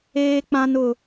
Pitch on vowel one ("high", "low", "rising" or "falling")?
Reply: high